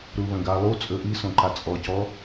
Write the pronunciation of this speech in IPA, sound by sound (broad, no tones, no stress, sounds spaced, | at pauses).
ɾ u β ə̃ ɡ a lˠ u t͡sʼ ɵ ʔ i s õ ǃ a t͡sʼ ɔ c ɔ